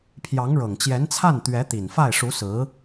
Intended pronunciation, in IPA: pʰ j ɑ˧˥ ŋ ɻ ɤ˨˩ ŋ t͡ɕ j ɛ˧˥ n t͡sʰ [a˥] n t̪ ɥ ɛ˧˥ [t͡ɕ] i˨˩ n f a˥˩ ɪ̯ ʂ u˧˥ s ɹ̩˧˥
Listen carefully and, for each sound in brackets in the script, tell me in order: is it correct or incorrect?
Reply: incorrect: a˥˩, incorrect: t̪

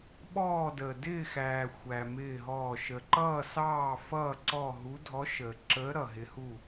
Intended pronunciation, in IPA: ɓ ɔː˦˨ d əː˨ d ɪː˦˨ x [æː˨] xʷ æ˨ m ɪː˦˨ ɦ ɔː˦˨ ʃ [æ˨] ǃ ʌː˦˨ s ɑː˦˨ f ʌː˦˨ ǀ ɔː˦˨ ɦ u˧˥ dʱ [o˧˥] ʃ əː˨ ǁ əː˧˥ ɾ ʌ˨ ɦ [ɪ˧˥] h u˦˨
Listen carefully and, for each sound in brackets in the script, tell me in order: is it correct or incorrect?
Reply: correct, incorrect: ə˨, incorrect: ɔ˧˥, correct

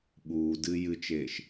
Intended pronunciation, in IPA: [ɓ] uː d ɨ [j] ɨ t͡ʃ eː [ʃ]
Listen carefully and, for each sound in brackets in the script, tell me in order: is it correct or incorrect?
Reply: correct, correct, correct

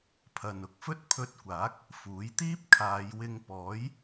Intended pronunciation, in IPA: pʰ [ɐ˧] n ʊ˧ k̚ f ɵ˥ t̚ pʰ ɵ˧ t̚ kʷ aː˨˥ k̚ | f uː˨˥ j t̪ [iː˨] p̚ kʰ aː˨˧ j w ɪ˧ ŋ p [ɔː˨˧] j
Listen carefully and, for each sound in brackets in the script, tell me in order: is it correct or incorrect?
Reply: incorrect: ɐ˨, incorrect: iː˥, incorrect: ɔː˨˥

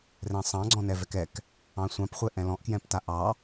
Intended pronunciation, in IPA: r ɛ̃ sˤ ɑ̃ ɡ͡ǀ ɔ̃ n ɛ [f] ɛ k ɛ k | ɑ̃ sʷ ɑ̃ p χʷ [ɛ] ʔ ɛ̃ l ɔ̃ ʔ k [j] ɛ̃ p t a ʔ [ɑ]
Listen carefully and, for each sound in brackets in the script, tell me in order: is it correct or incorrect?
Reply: incorrect: v, correct, correct, correct

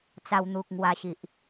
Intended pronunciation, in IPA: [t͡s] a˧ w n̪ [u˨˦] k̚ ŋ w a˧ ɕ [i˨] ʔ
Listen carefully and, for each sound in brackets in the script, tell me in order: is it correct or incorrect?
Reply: correct, incorrect: u˨, correct

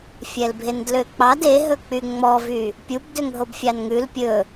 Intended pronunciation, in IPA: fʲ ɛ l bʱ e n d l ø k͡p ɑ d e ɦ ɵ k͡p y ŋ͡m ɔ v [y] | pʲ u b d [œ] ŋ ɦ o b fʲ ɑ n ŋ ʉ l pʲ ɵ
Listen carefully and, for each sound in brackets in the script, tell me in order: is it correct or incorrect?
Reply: correct, incorrect: ø

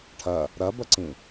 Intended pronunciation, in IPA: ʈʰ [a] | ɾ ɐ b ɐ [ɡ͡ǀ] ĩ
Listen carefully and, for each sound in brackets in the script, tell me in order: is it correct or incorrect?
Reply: incorrect: ɐ, incorrect: ǀ

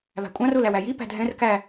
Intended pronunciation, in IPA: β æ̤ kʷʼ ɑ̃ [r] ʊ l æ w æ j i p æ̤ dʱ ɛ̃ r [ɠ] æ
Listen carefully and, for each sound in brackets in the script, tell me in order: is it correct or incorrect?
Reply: correct, incorrect: k

